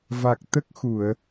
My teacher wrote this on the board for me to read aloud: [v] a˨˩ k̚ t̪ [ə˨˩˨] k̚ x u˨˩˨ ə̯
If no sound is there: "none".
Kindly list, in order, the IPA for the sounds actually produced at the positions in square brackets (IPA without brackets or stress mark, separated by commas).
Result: v, ə˦˥